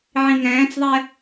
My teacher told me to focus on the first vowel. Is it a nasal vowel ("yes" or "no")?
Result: yes